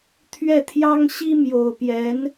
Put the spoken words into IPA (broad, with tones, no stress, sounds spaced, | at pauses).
t̪ʰ ɥ ɛ˥˩ t̪ʰ j ɑ˥ ŋ ɕ i˥ m j o˨˩ ʊ̯ p j ɛ˧˥ n